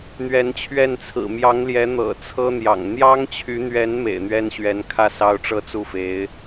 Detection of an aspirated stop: present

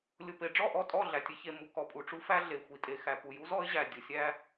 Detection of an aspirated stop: absent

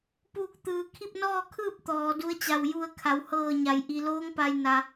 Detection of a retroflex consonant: absent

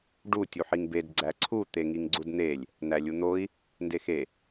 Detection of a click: present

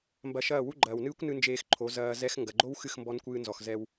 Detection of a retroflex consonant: absent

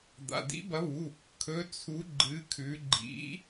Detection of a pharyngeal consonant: absent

